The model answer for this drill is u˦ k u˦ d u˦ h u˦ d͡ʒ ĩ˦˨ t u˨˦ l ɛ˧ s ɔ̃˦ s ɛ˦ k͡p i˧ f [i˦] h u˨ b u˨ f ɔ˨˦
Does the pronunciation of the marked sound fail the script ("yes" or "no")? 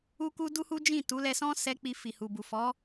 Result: yes